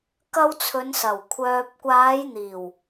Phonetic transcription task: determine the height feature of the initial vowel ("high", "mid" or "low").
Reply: low